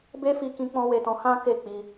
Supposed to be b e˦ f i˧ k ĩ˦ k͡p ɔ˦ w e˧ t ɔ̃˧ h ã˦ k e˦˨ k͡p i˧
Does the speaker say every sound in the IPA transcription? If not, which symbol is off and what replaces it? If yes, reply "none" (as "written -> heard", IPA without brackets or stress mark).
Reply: ɔ˦ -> ɔ̃˦